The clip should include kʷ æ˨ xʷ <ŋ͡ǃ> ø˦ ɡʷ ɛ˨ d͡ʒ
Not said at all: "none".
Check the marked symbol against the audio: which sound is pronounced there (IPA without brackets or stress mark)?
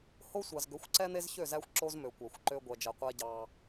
ǃ